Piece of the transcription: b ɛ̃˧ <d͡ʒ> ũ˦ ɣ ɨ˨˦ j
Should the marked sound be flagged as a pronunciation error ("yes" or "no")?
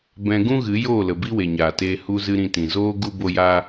yes